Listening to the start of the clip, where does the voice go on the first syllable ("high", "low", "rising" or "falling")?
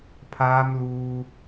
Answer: high